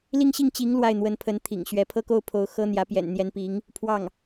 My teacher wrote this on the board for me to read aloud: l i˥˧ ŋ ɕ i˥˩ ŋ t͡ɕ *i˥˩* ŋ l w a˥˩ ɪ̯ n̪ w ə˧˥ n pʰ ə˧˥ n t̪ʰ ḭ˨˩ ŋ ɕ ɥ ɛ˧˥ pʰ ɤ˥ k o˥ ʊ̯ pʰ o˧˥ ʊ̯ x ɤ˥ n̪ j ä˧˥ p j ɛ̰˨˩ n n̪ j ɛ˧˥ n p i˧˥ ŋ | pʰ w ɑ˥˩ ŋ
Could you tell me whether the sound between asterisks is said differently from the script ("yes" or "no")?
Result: yes